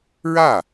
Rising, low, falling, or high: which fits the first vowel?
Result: falling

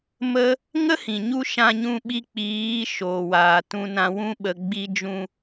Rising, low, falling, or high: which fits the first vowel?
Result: high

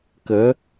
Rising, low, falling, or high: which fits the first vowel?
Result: rising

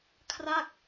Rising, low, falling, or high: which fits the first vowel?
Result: falling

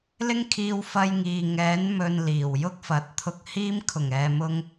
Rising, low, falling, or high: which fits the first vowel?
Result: high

